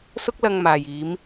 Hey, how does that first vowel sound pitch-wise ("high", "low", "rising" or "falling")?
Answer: high